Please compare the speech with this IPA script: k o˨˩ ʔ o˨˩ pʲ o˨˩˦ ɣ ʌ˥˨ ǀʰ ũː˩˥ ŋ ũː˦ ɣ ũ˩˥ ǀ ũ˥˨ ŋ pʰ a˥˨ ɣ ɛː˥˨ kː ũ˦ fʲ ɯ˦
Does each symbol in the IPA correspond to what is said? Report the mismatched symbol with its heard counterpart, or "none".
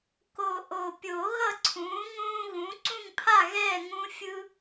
kː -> ŋ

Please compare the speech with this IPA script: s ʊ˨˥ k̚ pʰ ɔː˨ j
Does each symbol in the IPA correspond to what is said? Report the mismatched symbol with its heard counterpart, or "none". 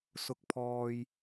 none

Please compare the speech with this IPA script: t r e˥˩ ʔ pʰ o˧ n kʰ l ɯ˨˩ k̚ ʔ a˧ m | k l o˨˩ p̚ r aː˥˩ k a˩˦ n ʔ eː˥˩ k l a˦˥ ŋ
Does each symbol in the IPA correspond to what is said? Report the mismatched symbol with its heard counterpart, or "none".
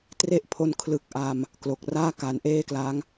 p̚ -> k̚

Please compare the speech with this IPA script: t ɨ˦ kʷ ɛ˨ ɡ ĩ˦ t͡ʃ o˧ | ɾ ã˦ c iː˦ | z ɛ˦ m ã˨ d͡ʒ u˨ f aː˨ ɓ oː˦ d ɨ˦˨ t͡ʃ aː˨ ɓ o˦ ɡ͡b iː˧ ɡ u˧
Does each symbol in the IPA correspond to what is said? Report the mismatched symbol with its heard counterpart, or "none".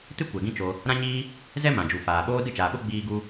c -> ɲ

